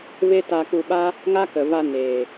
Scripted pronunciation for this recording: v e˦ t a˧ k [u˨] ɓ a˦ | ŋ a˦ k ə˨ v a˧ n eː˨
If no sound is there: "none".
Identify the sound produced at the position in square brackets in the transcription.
u˧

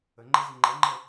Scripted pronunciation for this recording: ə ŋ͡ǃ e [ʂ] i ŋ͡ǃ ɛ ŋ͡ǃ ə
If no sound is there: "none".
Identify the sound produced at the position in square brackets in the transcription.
z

